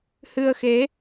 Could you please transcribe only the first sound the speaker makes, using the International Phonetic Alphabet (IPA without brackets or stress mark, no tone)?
h